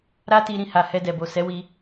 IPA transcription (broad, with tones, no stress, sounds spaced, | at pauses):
ɾ a˦ t i˧ ɾ ĩ˧ h a˨ h ɛ˧ d ɛ˨ b o˨ s ɛ˨˦ w i˧